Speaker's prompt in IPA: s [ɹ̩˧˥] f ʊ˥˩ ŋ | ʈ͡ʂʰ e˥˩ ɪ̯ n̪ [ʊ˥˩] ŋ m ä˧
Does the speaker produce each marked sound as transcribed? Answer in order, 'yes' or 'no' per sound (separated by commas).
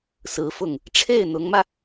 yes, no